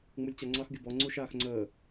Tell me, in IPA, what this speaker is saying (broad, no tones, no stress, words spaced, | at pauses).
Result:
ŋ͡mulʲt͡ɕaŋ͡ǀɑx ɡʲʊbɔ ŋ͡ǀuʃaːxŋ͡ǀəː